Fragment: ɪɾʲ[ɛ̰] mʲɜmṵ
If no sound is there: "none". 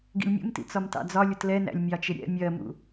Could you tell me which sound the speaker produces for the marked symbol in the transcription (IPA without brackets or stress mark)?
ɛ̰